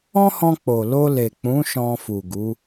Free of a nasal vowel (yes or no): no